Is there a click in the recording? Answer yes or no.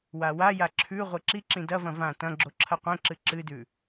yes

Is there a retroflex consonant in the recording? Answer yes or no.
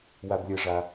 yes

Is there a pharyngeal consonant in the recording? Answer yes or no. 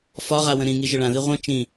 no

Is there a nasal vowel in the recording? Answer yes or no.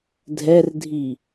no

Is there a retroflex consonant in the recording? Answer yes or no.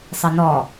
no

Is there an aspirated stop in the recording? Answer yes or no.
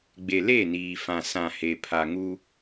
yes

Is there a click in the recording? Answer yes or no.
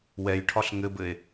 no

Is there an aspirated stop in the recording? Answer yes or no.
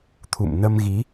yes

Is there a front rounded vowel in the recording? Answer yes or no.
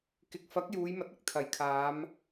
no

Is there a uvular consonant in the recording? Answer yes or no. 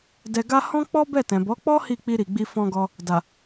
no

